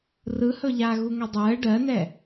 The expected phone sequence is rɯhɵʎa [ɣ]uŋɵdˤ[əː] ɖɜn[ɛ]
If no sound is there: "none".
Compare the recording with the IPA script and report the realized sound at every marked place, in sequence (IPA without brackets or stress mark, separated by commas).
ɣ, əː, ɛ